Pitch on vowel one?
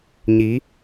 rising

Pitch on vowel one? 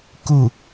falling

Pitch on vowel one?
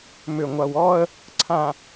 low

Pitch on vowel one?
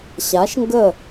rising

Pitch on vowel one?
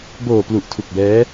low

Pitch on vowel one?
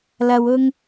low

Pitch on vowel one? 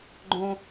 high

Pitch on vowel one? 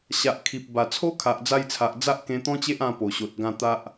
low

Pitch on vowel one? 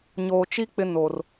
low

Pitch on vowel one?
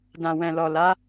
low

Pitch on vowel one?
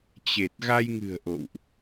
low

